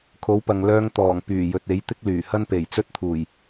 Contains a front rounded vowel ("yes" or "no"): yes